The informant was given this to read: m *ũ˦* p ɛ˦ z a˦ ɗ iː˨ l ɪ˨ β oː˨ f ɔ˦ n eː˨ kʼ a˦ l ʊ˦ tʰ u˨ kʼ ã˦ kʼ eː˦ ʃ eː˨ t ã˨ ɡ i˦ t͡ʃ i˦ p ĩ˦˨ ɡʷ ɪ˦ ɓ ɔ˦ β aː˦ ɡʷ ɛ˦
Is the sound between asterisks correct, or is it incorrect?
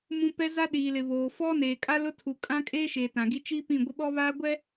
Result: correct